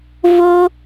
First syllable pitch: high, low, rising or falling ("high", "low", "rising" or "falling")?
high